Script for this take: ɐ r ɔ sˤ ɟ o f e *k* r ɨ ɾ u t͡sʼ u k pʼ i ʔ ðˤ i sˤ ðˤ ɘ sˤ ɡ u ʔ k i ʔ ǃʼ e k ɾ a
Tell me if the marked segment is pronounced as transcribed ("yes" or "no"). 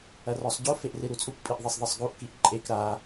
no